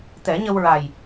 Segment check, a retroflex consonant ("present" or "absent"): absent